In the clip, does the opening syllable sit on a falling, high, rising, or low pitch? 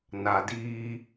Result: low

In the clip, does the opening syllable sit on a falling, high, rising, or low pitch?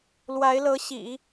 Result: rising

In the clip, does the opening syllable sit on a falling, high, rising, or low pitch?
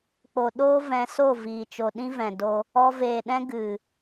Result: low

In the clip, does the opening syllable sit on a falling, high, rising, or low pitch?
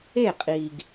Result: falling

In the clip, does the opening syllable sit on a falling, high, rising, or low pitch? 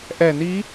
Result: low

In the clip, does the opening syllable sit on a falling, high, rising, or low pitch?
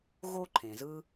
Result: high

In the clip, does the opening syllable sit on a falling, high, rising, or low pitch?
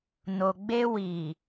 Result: low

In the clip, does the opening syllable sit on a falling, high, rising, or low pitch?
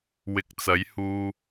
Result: low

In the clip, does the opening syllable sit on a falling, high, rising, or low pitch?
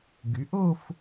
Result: rising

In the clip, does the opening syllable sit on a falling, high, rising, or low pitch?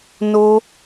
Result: high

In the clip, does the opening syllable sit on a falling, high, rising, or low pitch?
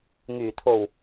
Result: low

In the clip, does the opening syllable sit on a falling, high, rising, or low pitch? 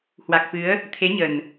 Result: low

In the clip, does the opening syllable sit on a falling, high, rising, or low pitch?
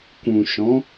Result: low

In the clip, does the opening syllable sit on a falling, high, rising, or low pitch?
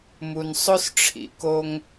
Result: low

